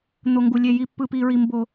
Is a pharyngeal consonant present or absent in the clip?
absent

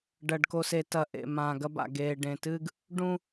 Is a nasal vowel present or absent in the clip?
present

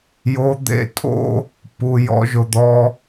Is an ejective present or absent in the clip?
present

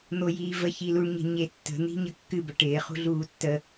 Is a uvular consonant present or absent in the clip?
present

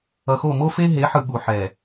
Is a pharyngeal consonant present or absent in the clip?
present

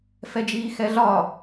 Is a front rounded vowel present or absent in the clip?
absent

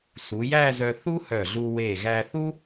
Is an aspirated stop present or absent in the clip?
absent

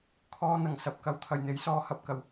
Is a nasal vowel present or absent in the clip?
absent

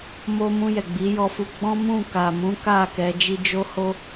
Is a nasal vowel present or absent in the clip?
present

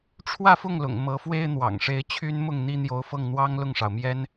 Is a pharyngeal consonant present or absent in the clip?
absent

